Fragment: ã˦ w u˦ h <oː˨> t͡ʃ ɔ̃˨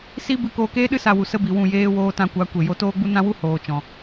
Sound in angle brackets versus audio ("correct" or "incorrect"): correct